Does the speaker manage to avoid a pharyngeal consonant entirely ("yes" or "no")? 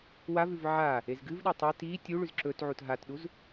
no